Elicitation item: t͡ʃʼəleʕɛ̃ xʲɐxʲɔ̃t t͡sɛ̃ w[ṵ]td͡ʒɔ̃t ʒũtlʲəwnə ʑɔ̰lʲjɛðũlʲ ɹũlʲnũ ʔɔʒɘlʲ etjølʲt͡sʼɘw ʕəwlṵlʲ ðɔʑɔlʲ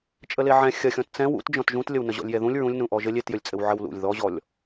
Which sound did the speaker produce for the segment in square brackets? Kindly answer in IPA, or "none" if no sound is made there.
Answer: ṵ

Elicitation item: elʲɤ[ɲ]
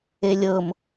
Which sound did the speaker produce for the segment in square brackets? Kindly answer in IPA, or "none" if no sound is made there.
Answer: m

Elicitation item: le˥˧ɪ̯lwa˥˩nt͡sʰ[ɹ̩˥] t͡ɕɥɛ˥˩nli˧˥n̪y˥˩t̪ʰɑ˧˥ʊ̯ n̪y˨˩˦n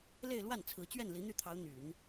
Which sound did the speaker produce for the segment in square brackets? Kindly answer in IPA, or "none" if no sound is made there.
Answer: ɹ̩˧˥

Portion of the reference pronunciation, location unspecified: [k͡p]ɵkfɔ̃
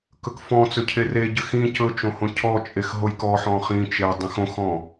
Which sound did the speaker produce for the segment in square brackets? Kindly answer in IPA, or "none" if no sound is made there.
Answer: k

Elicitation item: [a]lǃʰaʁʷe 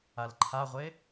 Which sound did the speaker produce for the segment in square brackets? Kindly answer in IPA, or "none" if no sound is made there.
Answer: a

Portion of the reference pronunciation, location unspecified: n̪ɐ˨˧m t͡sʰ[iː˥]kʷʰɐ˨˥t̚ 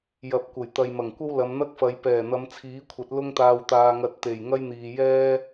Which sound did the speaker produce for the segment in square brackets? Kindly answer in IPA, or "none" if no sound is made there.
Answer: iː˨˥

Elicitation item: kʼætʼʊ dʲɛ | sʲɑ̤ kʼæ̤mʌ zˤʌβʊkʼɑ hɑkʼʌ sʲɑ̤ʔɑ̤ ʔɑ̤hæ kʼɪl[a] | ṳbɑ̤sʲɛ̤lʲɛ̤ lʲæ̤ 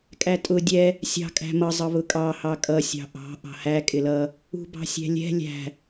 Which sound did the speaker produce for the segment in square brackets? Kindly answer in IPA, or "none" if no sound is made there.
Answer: ʌ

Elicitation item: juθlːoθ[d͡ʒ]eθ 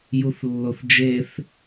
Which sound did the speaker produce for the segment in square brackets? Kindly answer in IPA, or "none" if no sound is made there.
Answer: d͡ʒ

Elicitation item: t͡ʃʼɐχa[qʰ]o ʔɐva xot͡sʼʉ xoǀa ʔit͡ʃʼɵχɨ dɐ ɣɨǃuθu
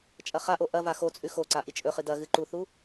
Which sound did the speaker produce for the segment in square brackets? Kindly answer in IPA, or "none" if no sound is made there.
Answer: ʔ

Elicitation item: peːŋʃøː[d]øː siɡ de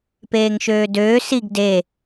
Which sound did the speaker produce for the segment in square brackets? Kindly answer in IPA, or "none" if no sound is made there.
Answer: d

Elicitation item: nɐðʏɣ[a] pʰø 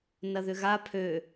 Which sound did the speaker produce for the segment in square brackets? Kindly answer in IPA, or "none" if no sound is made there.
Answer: a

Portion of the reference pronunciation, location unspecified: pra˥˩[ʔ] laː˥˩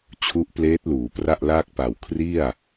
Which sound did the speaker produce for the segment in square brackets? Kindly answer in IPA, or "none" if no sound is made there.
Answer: ʔ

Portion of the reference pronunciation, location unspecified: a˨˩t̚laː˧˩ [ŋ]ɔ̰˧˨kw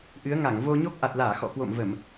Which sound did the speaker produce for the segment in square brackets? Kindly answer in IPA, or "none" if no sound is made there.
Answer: x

